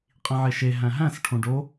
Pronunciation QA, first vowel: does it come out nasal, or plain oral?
nasal